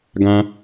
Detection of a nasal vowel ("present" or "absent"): present